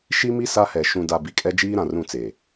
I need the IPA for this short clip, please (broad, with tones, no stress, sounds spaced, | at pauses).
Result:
ʃ i˦ m i˦ s a˦ h ɛ˨ ʃ ũ˨ d a˨ b i˨˦ kʼ ɛ˦ d͡ʒ iː˦ ɾ ã˨ r ũ˦˨ t͡s e˨